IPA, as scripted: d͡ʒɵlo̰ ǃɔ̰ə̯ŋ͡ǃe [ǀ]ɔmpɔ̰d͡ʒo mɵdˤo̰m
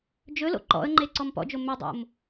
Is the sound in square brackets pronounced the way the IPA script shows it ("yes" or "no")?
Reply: yes